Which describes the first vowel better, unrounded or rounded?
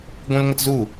rounded